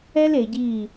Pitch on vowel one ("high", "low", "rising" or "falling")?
high